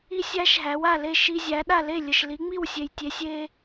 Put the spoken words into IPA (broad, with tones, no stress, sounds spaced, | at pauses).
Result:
i˥ sʲ æ˥ ʃ ɦ æ˩˥ w a˥˩ l e˥˩ ʃ i˧ zʲ æ˩˥ ɗ a˥˩ l e˥˩ lʲ ə˩ ʃ l i˩˥ ŋ͡m i˥˩ w sʲ e˩ j tʲ e˩˥ sʲ e˧